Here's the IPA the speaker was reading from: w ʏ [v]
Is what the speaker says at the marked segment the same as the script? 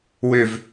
yes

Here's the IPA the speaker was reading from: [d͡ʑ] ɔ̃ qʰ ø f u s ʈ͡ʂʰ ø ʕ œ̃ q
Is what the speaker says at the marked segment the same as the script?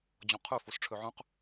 yes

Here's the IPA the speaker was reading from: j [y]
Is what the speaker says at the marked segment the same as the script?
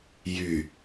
yes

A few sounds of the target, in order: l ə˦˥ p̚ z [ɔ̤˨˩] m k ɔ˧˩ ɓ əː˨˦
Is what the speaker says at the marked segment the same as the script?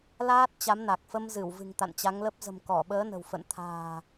no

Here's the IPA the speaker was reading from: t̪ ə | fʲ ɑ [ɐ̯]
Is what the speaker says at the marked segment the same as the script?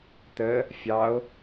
no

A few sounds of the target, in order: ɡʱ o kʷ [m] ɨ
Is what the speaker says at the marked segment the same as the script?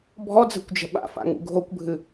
no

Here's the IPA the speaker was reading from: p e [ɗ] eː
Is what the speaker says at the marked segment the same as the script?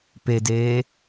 no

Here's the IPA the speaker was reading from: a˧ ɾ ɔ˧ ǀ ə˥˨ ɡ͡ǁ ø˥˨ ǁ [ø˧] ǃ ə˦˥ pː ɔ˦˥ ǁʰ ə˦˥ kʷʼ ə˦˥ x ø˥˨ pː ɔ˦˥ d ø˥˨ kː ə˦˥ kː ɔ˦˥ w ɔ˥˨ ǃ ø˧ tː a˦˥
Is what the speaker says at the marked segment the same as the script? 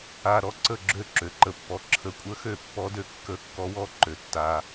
yes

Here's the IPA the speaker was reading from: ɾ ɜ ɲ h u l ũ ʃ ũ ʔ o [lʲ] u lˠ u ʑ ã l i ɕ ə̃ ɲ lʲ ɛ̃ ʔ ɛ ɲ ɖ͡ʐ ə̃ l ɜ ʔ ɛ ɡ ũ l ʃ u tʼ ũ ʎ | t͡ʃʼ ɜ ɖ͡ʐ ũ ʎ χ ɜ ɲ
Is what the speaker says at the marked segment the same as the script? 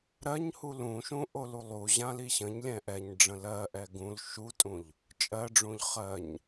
no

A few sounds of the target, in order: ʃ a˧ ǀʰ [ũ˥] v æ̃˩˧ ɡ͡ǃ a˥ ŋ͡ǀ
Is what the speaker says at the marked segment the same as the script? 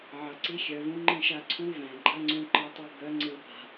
no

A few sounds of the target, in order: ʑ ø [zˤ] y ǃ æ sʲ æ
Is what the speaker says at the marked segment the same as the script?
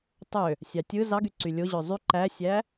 yes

